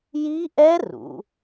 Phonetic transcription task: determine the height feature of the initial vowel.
high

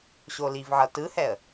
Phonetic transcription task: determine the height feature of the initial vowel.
mid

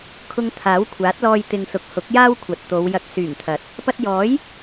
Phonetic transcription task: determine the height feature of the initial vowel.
high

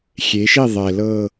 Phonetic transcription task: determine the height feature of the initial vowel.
mid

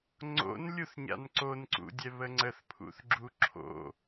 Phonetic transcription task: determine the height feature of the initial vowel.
mid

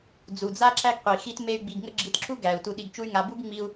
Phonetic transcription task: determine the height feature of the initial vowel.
high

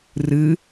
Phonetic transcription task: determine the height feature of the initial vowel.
high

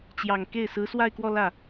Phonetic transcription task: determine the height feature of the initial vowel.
low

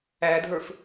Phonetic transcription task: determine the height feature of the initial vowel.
low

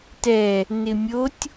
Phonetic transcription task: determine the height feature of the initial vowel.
mid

